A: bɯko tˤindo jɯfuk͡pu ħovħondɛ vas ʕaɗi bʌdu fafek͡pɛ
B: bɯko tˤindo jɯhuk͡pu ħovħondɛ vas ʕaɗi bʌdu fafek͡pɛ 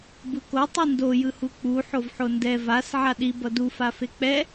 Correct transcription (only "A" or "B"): B